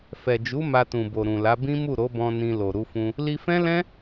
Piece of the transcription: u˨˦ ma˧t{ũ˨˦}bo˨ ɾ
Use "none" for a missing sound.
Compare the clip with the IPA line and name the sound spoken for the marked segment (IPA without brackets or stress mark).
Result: ũ˨